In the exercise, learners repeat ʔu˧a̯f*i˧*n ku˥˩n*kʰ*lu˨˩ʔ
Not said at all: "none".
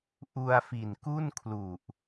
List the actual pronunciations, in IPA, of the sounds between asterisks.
i˨˩, kʰ

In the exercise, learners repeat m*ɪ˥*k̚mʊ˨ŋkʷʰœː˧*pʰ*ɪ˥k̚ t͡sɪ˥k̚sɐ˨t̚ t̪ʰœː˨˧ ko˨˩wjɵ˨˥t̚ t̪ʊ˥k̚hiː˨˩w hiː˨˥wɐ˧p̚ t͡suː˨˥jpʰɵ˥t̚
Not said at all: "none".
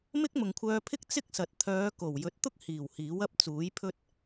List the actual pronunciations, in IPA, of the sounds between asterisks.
ɪ˥, pʰ

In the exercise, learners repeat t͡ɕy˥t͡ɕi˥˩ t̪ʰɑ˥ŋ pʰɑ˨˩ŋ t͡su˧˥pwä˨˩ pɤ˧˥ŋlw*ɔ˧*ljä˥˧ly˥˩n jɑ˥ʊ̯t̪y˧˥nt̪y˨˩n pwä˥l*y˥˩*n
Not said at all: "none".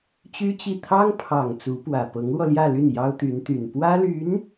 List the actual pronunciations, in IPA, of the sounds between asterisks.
ɔ˧, y˧˥

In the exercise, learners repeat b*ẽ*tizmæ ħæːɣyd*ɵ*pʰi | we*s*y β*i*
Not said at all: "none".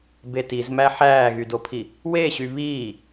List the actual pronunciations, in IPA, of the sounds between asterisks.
e, o, ɕ, iː

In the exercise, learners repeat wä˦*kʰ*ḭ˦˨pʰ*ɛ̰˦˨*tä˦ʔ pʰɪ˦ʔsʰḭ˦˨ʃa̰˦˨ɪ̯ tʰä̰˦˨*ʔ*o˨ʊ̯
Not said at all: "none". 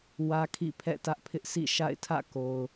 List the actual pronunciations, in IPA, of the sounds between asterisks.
kʰ, ɛ̰˦˨, k

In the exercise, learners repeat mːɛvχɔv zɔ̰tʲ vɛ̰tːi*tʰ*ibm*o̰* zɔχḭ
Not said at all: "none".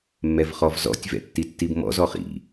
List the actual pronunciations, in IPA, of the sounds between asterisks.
tː, ɔ̰

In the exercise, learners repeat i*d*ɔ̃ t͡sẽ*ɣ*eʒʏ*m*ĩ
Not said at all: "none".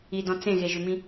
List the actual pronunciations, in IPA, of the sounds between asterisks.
d, ɣ, m

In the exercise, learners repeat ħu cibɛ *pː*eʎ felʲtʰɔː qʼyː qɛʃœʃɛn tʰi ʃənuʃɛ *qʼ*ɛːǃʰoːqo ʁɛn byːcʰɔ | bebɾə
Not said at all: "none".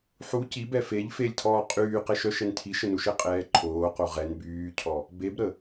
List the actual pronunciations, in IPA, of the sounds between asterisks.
f, qʼ

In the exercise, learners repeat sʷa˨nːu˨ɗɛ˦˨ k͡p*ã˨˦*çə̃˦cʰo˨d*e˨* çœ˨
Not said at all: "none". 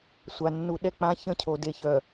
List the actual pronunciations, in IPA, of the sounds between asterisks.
ã˦, e˨

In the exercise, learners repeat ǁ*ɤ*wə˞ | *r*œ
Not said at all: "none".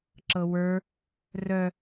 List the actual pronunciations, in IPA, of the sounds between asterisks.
ɤ, r

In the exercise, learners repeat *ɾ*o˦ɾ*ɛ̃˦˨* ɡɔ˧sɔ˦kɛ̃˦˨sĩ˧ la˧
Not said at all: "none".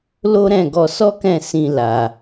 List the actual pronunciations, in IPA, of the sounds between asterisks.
l, ɛ̃˦˨

